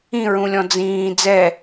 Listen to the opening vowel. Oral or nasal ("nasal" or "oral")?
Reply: nasal